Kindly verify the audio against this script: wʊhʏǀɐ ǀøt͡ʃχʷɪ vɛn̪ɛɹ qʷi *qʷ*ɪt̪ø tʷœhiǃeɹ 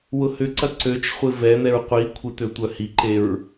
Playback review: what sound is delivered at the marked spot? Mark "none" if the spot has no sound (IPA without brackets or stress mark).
kʷʰ